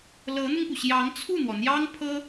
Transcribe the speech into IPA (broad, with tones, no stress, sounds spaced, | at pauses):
l ɤ˧˥ n̪ ʊ˧ ŋ p u˩ ɕ j ɑ˧˥ ŋ t͡sʰ u˥˩ n̪ w ɔ˩ n̪ j ɑ˥ ŋ pʰ ɤ˥